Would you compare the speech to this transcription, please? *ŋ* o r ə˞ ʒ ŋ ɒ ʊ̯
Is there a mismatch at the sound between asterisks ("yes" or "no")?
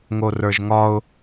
no